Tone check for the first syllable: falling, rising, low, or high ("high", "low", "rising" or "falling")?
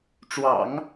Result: low